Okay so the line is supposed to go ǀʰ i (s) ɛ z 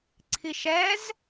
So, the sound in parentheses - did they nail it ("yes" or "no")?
no